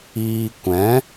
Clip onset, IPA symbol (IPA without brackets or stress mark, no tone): iː